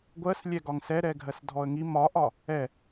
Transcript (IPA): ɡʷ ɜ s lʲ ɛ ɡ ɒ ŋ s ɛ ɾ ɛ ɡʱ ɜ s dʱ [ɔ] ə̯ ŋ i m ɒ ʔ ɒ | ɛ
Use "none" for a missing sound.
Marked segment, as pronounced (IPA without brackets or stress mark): ɔ